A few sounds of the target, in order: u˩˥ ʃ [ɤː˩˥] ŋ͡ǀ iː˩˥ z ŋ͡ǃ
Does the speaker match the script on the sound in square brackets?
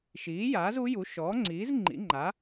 no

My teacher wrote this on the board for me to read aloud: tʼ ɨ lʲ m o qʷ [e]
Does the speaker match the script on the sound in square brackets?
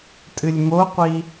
no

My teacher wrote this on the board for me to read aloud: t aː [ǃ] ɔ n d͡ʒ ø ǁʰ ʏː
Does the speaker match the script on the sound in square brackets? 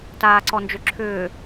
no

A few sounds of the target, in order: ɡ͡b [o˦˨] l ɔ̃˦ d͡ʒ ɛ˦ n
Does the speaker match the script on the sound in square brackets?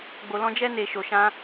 no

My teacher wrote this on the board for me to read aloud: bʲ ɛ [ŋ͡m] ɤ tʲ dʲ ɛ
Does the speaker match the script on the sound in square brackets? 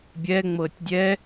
yes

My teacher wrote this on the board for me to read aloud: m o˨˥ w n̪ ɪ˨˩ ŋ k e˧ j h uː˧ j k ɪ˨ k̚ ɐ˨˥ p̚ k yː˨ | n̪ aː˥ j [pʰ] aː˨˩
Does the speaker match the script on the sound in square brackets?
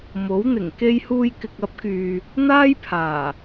yes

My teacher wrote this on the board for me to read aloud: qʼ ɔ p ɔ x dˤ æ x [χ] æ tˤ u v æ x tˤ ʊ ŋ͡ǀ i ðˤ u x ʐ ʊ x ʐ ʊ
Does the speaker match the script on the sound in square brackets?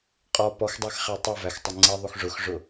yes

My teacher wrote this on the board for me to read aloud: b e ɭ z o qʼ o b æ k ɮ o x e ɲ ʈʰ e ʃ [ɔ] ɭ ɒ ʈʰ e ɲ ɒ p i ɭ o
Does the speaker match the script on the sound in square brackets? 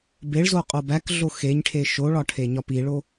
no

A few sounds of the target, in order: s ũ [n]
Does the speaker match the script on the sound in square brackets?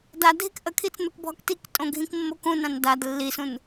yes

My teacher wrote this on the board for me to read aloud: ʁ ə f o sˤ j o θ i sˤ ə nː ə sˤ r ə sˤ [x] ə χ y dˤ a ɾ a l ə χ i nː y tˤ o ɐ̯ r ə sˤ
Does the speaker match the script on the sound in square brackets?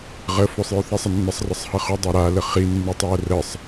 no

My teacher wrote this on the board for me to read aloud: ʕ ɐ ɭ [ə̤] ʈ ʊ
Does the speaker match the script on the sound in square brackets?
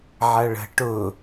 yes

